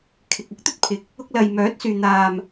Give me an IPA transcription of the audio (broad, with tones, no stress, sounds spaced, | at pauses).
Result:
kʰ ɪ˨ k̚ ʊ˥ k̚ t̪ ɵ˥ t̚ pʰ ɪ˨˥ k̚ | ʊ˧ k̚ l ɐ˨ j m œː˨˥ t̚ s yː˨ n̪ aː˨ m